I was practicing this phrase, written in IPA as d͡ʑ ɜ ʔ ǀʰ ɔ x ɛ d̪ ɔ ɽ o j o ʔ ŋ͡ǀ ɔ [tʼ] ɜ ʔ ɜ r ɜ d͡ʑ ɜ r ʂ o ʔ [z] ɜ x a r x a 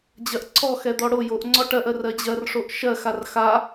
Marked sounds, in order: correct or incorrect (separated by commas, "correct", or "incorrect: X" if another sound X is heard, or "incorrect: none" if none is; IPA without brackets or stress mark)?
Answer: incorrect: ʈ, incorrect: ʃ